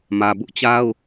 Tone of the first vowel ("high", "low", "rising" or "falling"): low